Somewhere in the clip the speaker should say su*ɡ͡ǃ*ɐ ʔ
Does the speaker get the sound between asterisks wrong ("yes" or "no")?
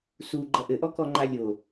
no